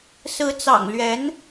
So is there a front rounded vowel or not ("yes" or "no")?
no